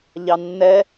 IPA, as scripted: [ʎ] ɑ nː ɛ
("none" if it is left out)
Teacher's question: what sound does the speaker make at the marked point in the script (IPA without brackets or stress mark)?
ʎ